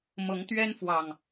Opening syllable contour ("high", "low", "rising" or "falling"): rising